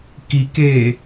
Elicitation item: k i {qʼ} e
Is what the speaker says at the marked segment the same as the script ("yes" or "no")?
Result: no